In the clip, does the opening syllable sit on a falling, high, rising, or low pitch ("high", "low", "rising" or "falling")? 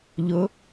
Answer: rising